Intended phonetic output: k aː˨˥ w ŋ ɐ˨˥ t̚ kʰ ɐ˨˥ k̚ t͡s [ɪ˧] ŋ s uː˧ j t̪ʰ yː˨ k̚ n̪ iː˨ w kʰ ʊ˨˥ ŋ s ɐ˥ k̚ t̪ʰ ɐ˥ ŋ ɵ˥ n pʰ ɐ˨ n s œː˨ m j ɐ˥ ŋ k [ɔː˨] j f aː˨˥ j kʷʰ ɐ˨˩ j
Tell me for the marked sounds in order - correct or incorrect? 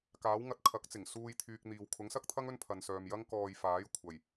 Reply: incorrect: ɪ˨˩, correct

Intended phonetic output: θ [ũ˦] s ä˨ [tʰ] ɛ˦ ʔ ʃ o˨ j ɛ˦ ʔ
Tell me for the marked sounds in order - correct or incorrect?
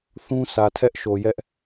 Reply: correct, correct

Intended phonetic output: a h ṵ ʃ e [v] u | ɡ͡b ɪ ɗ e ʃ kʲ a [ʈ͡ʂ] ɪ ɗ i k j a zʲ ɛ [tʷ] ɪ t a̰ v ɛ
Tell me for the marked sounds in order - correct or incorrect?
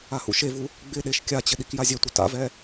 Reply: correct, incorrect: t͡ɕ, correct

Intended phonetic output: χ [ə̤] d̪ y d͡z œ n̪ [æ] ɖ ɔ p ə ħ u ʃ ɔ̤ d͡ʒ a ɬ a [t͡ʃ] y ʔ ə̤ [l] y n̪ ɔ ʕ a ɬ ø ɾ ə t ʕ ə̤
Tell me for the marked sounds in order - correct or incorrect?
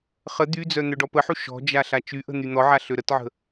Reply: incorrect: ə, incorrect: œ, correct, incorrect: n̪

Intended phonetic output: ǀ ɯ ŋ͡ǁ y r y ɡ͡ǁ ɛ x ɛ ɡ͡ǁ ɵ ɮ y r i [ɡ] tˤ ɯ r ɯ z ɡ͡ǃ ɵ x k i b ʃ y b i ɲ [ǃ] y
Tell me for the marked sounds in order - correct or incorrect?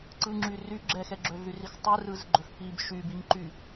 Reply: incorrect: x, correct

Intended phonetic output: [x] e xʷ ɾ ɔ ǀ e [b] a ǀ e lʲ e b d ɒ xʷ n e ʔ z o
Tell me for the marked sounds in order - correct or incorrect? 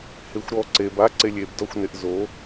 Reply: incorrect: h, correct

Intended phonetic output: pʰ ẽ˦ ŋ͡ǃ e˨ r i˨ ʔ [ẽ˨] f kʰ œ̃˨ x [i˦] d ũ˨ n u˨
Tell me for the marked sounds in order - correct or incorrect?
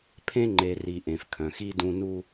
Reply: correct, correct

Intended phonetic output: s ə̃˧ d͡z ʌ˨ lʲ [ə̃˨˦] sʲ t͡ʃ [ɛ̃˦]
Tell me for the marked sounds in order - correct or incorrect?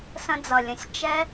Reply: correct, incorrect: ɛ˦

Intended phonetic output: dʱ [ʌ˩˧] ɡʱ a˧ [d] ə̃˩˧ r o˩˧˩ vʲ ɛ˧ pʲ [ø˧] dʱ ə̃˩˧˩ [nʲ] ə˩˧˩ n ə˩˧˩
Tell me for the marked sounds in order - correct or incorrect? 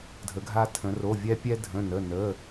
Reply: incorrect: ə˩˧, incorrect: tʰ, incorrect: ɛ˧, incorrect: n

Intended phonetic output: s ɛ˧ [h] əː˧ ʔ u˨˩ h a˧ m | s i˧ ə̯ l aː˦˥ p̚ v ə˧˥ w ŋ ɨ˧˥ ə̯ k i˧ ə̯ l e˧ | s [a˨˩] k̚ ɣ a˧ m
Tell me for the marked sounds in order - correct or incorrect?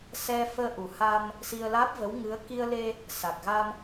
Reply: incorrect: f, correct

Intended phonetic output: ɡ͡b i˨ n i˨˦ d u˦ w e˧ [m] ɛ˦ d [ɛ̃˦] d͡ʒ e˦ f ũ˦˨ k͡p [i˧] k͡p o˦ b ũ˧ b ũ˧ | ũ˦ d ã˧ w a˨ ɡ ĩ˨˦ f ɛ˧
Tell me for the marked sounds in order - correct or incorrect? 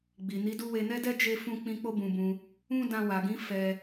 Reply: incorrect: n, incorrect: ɛ˦, incorrect: ĩ˧

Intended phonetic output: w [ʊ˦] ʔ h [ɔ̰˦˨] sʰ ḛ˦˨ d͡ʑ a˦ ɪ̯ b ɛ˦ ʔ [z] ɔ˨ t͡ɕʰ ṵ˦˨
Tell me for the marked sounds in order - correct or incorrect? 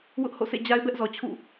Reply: correct, incorrect: o̰˦˨, correct

